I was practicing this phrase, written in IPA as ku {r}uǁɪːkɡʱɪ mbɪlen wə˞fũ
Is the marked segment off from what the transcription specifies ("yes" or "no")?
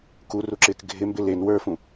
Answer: no